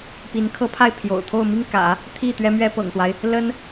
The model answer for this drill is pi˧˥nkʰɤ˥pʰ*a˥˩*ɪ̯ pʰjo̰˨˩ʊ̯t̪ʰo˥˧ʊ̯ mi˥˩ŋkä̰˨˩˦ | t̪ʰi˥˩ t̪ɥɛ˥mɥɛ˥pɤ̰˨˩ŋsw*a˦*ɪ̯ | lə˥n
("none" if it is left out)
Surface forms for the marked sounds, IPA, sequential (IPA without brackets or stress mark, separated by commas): a˥˩, a˦